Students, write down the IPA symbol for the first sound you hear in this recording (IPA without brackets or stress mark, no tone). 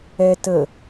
ɛ